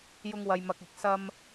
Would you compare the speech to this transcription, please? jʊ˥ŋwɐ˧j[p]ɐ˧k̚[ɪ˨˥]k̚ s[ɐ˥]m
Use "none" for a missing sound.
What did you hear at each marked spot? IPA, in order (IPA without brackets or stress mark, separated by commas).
m, ɪ˨˥, ɐ˥